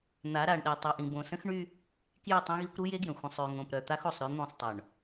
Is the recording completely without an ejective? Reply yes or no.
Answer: yes